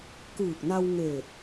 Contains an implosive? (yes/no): no